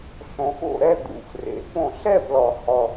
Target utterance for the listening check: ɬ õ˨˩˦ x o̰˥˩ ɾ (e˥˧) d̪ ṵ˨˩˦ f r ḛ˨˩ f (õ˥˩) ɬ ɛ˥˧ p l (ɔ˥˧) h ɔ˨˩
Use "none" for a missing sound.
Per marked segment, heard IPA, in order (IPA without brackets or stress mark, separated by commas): ɛ˥˧, õ˥˩, ɔ˨˩